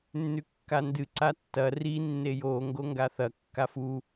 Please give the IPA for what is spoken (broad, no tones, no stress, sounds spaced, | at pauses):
nː ʉ kː a n d ɨ ǀ a tː ɐ r i nː e j o ŋ ɡ o ŋ ɡ a θ ɐ kː a f u